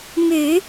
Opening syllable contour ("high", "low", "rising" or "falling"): low